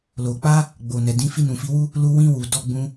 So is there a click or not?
no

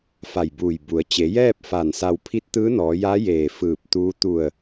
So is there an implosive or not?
no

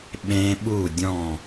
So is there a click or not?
no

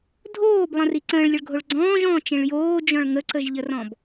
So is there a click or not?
yes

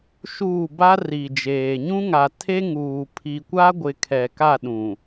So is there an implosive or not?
yes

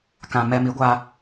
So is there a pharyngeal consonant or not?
no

